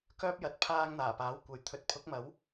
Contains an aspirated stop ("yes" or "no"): yes